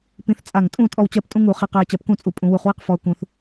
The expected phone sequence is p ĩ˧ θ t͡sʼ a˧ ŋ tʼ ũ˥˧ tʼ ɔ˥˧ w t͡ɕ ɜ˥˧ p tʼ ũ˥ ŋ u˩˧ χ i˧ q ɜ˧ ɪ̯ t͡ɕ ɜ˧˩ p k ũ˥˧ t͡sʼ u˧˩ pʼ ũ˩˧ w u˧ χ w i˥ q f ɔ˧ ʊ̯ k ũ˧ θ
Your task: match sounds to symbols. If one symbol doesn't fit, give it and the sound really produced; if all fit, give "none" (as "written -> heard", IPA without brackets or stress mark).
a˧ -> a˧˩